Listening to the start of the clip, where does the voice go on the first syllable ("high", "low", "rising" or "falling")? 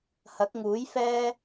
rising